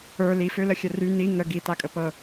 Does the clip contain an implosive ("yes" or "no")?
no